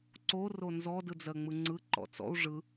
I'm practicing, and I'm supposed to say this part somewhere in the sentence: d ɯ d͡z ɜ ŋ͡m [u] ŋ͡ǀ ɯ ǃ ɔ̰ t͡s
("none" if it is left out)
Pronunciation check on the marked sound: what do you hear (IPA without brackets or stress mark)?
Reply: ɯ